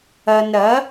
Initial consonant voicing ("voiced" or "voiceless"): voiced